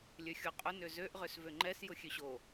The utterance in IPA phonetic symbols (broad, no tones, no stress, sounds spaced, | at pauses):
lʲ ø xʲ o qʼ ʊ n ø z ø ʔ ʁ ø s v ø ŋ͡ǃ ɛ s j ʊ xʲ ø ɕ o